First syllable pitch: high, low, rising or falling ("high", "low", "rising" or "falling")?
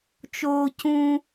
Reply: high